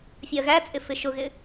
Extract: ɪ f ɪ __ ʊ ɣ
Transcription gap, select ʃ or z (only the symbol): ʃ